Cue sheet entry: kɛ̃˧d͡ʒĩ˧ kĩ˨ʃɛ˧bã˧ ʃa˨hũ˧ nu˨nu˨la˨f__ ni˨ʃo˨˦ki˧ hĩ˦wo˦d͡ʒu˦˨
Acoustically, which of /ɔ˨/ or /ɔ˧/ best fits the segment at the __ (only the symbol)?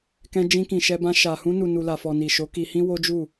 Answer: ɔ˨